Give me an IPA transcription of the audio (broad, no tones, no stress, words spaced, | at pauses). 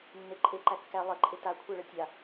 nːeǃʼe ǃækːæ lˠə ǃʼeta kʷʰæɭətʲa